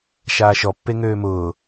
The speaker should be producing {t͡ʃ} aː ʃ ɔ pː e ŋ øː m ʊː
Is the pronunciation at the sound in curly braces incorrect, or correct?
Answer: incorrect